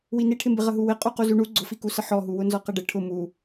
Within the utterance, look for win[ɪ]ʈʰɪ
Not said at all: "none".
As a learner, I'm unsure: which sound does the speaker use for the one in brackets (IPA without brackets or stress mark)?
i